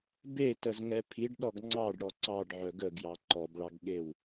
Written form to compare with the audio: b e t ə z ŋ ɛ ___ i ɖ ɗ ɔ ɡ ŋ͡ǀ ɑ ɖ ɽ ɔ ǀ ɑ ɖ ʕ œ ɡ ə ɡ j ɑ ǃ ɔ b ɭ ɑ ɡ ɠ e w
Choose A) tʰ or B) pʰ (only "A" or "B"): B